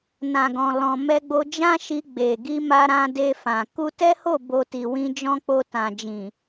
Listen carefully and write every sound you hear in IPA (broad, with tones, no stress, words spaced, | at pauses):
nã˨ɡɔ̃˨lɔ̃˨ mɛ˧ɡ͡bo˧d͡ʒã˦ ʃi˧ɡ͡be˨ɡi˧ma˧ ɾã˧de˧fã˨ ku˧tɛ˦ho˦˨ bo˧ti˨wĩ˧d͡ʒɔ̃˦ k͡po˧tã˨d͡ʒĩ˨